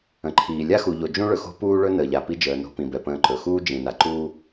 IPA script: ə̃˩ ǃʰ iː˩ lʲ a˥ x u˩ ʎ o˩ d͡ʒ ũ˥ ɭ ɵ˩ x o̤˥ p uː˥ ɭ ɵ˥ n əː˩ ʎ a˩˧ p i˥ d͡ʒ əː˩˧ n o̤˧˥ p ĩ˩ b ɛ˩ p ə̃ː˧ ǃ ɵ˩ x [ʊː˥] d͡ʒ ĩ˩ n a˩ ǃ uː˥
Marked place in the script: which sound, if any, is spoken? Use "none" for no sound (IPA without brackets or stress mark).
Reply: uː˥